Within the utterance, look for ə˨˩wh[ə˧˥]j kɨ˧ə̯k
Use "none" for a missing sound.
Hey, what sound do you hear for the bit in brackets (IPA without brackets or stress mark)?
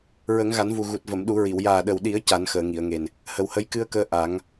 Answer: ə˧˥